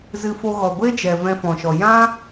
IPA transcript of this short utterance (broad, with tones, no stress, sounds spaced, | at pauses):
z ɨ˧ f o˧ ɣ ɔ˨ ɡʷ e˦ d͡ʒ ɛ˨ v ɛ̃˧ f ɔ̃˨ ʃ ɔ˨ j ã˦